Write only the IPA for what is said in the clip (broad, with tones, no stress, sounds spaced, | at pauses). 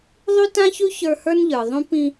ðˤ y˥ t ã˥ ç ʉ˥ ç ə˞˦ h ə˞˥ n ʎ ə˞˨ ðˤ ũ˥ p ĩ˦